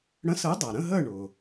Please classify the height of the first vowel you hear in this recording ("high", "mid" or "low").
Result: mid